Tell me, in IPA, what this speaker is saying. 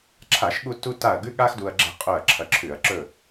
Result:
ǁʰa˧˩˧ʃɠu˧ tu˥ta˥˨ɐ̯ ɡʉ˥ɠa˥xdu˧ɐ̯ ɡ͡ǁe̤˥qʼɵ˥˨ɐ̯ ǁʰɐ˧ǁʰʉ˧˩˧ɐ̯ ǁɵ˥˨

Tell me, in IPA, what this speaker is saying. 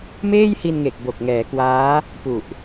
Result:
meː˥˩jhi˧nŋe˨˩k̚ bo˨˩k̚ ŋɛː˩˦kwaː˦˥ | pu˨˩ʔ

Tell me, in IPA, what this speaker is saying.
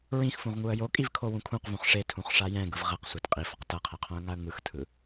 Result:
ɹĩxfũʁŋuə̯ jokʼivkʰowũ kʰũqvũχ ʂetʰũχʂa jɛ̃ɡɯv ʁɛqsʷat qʼifʌq tʌqʰɛqʰõə̯ŋaə̯ ŋɯxtʰɯ

